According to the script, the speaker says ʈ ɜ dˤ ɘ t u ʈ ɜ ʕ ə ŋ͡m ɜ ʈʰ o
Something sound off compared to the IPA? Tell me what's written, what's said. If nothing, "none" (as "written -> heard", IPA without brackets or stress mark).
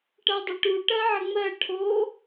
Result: t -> ʈ